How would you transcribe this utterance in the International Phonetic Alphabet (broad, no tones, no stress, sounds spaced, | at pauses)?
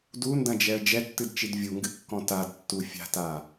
d u n d ɐ̃ d͡ʒ ɛ ə̯ d͡ʒ ɛ tː ɨ d t͡ʃ i d vʲ u ŋ ɡ ɨ kː ɔ̃ t a d tː u fʲ a̤ t a